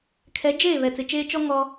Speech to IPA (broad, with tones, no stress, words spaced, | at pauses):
kʰɛ˨˦d͡ʒeː˦˨ βɛ˨t͡sɪ˨t͡ʃeː˦ t͡ʃɔ˦ ŋɔ˦